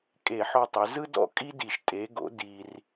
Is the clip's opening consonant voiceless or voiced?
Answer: voiceless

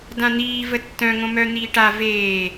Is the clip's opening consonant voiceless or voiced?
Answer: voiced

